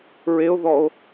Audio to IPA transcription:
ɹ e o̯ ð ɔ o̯

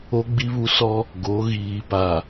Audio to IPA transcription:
o˦ ɡ͡b i˦ β u˦ s ɔ˦ | ɡ o˨˦ ɣ iː˨ p a˨

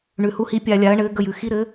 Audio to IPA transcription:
ɳ ʉ˩ h u˨˩˦ h i˨˩˦ pʲ a˧˩ lʲ a˨˩˦ ɐ̯ ɳ ɘː˨˦ ɡ ə˧˩ j ʉ˩ x i˨˦ ɾ ɘː˨˦

